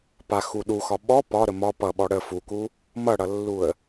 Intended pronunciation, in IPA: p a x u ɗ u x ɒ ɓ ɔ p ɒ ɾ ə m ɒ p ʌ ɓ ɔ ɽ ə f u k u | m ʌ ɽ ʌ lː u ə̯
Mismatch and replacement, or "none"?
none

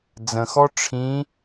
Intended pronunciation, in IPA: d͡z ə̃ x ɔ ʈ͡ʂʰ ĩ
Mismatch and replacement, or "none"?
none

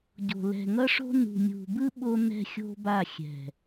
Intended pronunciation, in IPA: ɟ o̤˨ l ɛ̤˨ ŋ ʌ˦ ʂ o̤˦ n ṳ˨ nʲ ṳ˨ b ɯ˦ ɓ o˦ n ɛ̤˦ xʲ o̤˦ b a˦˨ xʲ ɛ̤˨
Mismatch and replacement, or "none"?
none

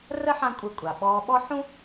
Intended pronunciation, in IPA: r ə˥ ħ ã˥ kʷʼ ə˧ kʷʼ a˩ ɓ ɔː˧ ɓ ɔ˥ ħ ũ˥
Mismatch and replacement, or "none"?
none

